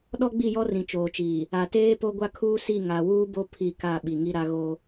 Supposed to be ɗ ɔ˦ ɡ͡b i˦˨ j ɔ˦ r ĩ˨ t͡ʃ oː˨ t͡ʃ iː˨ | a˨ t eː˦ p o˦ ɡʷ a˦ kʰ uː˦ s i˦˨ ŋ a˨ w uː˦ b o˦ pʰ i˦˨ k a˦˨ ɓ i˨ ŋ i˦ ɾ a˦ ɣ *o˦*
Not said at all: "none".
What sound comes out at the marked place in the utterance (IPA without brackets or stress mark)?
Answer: o˦